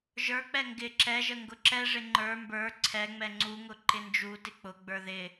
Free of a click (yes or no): no